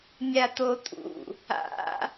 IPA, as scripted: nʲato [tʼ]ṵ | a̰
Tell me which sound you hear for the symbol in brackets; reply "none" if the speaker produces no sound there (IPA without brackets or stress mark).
tʼ